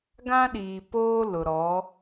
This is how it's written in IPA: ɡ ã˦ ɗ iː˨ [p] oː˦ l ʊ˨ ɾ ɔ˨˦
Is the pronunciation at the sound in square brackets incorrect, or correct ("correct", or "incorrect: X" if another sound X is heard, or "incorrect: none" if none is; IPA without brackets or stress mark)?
correct